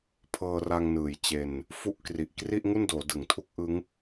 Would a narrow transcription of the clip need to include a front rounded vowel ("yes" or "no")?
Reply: no